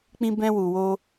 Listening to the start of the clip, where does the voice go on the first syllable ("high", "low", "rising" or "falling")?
high